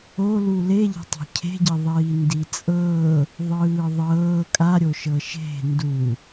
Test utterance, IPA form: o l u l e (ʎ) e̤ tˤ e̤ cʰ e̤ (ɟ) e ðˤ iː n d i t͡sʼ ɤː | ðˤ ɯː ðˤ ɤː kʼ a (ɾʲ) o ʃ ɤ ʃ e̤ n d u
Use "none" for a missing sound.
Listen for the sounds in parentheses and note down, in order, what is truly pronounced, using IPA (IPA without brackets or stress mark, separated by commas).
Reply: ʎ, ɟ, ɾʲ